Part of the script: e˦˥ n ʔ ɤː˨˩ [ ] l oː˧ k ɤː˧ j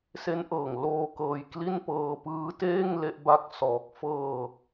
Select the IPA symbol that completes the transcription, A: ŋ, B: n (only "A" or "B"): A